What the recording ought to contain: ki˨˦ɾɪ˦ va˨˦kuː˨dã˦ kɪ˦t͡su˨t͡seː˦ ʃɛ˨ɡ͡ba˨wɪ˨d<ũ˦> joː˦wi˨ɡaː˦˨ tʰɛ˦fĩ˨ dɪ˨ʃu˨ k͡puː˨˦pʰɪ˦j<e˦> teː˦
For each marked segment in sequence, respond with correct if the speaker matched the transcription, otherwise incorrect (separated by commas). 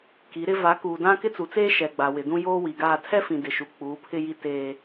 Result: correct, incorrect